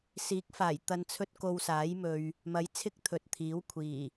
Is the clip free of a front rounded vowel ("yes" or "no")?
yes